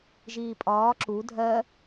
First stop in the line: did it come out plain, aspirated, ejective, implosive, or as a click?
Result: ejective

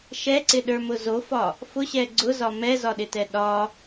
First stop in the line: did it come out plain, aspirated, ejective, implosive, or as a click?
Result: click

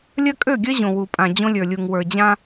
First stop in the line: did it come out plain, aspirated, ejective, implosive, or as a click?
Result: ejective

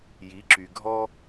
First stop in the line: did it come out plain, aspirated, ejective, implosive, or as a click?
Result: click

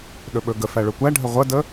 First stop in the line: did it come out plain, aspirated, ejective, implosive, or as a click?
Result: implosive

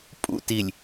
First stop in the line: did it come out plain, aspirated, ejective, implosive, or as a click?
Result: ejective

